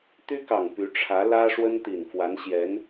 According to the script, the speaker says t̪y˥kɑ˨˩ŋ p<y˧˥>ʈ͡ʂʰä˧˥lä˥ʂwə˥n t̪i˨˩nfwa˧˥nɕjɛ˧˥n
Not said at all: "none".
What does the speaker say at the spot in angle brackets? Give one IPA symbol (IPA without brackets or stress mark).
y˧˥